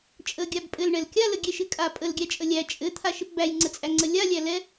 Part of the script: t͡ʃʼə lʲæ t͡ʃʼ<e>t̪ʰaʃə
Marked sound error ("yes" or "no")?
yes